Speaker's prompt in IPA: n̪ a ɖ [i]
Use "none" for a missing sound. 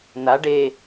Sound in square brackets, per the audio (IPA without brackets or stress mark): e